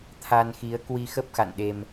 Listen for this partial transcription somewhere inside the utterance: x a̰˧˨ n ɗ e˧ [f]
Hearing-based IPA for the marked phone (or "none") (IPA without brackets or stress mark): m